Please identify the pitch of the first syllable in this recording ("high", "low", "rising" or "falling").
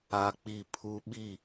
high